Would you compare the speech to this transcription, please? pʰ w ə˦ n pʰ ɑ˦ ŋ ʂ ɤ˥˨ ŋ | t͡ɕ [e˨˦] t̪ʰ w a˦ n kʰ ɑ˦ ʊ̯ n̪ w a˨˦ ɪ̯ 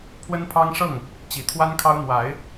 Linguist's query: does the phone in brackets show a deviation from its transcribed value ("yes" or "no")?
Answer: yes